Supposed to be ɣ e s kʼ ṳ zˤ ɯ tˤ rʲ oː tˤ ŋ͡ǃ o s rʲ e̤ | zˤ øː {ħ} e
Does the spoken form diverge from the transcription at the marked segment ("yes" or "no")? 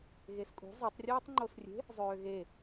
yes